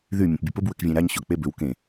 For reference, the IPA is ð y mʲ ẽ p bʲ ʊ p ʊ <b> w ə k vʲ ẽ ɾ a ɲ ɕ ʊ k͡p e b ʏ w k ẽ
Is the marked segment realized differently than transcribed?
no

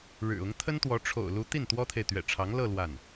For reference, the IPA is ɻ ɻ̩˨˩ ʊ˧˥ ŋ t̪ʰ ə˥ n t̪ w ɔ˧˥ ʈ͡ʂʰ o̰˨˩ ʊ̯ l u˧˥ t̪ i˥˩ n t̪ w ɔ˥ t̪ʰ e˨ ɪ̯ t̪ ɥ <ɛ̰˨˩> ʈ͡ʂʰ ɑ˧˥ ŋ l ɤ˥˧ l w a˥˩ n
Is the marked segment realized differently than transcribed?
no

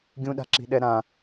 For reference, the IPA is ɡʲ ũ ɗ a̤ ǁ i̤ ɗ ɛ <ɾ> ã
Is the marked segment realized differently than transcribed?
no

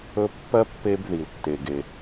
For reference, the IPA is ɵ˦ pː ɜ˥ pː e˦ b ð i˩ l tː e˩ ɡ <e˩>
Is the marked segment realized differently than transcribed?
no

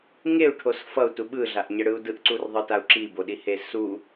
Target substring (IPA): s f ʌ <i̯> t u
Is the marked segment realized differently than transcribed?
yes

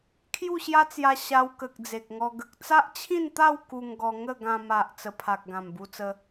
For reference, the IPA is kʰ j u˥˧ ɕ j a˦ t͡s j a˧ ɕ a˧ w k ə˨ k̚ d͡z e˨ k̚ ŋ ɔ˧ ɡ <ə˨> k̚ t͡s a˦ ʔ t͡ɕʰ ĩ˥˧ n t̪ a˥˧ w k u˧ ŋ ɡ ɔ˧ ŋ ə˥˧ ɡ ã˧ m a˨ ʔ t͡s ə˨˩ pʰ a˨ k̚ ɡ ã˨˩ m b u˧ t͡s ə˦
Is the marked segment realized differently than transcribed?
no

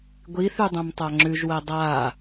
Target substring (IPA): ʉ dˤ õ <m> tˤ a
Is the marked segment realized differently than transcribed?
no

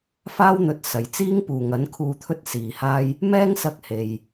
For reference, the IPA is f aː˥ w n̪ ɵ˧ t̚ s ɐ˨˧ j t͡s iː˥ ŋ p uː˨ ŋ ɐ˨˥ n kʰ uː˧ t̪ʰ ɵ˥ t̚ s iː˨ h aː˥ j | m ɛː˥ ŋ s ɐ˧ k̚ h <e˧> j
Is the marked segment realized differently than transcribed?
no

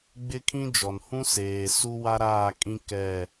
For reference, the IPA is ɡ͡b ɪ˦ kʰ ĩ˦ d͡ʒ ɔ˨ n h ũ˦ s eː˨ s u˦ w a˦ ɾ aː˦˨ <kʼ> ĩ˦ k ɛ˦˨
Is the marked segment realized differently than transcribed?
no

